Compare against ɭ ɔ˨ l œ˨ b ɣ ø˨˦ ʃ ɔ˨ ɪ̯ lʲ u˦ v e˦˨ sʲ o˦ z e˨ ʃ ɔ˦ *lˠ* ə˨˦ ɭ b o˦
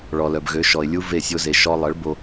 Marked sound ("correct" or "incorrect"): correct